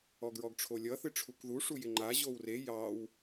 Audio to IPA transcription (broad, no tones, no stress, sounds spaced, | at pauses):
ɔ ɡ ɹ ɔ ɡ ʈ͡ʂʰ o lʲ ʌ θ ɨ ʈ͡ʂʰ u k ð u ʂ u j ɪ ŋ͡ǃ a ʑ o w r e j ɑ w